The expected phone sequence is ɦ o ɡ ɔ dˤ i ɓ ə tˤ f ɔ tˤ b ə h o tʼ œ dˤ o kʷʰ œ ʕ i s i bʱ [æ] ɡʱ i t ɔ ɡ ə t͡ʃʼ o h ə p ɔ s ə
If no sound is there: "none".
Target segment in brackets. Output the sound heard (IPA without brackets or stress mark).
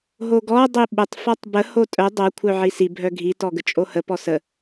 œ